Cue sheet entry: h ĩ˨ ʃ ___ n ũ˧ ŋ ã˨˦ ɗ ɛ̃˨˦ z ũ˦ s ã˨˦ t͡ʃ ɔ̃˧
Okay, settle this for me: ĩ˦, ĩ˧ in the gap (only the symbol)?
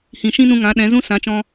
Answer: ĩ˦